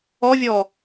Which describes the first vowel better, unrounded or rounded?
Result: rounded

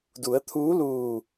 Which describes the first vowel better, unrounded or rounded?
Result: rounded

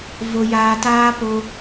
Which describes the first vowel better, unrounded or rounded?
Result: rounded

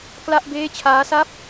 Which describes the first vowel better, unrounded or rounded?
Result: unrounded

